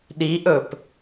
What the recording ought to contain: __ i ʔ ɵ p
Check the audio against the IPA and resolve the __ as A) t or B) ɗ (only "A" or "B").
B